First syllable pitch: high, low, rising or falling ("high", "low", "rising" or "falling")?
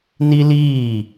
high